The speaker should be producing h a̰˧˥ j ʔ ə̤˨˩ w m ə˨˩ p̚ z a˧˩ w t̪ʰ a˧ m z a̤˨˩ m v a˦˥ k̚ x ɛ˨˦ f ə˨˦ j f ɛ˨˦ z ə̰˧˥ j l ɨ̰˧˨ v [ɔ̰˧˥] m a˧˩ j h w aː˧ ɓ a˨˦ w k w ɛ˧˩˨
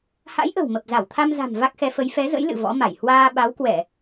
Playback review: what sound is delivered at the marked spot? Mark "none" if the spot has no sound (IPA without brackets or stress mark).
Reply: ɔ̰˧˥